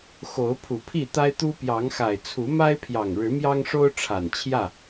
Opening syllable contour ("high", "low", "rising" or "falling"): rising